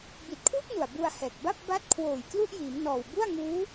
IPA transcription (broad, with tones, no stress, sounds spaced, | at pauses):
b i˨˩ t̚ kʰ w u˥˩ k̚ n u˨˩ a̯ b u˧ a̯ h ɛː˨˩ k̚ b a˥˩ p̚ b a˦˥ t̚ kʰ w oː˨˩ j k l u˥˩ ʔ j iː˩˦ m n ɔː˨˩ w b u˥˩ a̯ ŋ uː˦˥